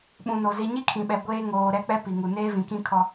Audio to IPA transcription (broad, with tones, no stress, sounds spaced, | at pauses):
ɓ ũ˨ n o˨ z i˨ ɲ i˦ kʰ ĩ˨ ɓ ɛ˨ ɡʷ eː˦ ŋ oː˨ ɾ ɛ˦ k͡p ɛ˦ p i˨ ŋ u˨ n eː˦ v ĩ˨ k ĩ˦ kʰ ɔ˦